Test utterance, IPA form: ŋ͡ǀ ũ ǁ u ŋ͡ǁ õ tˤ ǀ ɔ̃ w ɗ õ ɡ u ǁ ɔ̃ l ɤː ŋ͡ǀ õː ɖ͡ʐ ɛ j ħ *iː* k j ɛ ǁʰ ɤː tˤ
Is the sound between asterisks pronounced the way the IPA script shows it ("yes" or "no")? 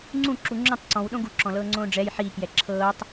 yes